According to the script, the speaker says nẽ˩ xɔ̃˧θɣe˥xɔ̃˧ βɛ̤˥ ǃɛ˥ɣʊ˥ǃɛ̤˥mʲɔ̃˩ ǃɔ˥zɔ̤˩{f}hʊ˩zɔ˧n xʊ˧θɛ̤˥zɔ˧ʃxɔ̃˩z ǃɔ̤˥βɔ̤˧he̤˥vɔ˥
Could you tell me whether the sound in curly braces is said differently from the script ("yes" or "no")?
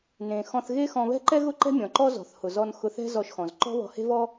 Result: yes